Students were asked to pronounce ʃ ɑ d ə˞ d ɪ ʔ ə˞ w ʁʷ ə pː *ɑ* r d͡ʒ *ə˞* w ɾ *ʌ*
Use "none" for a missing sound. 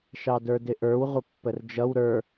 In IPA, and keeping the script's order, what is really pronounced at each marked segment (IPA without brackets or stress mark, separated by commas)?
ə, ʌ, ə˞